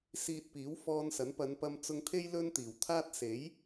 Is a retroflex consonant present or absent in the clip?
absent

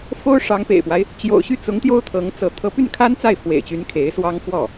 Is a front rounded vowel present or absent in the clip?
present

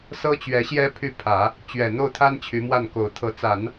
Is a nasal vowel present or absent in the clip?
absent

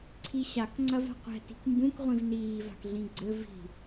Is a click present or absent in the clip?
present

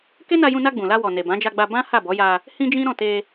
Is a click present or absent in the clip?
absent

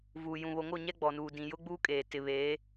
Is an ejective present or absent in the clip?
present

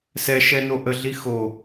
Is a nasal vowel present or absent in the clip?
absent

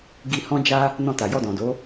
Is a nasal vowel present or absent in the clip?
present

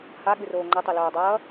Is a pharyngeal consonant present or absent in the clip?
absent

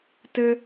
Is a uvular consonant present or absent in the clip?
absent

